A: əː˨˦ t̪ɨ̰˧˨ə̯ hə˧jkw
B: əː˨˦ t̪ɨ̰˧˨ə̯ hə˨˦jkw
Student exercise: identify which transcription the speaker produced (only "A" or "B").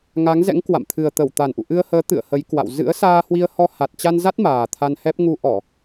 B